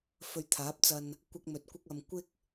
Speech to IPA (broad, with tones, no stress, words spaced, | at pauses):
fɵ˧ɥt̪ʰaː˨˥p̚t͡sɐ˧n | kʷɐ˥k̚mɵ˧t̚kʷɪ˥k̚ ɐ˨mkʷɪ˥k̚